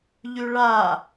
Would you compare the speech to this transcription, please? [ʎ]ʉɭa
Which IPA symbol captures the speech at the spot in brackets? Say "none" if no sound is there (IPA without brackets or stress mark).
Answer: ʎ